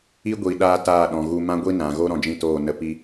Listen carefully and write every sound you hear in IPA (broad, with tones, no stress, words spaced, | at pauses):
i˦ɡʷiː˨ɗaː˧ taː˦˨ɗɔ̃˨ɣu˧ mã˦ɡʷi˦nã˨ɣo˦ ɾɔ̃˧d͡ʒĩ˦˨toː˦˨ nə˧pi˦